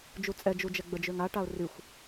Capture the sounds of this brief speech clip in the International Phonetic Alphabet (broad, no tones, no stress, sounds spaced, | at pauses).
d͡ʒ u t͡sʼ ɛ d͡ʒ u d͡ʒ ɛ ɡ͡b ə d͡ʒ ø ŋ a ʈ a ʊ̯ r y xʷ